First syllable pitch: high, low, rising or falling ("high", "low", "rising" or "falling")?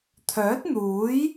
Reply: rising